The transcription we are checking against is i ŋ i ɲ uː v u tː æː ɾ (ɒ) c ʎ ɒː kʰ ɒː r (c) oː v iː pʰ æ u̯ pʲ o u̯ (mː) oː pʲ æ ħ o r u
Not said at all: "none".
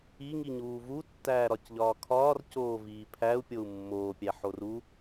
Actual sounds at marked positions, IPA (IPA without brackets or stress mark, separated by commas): ɒ, c, mː